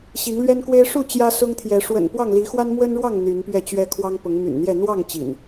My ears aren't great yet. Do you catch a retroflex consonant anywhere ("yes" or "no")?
yes